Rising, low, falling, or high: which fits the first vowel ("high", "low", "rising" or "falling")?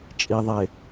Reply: low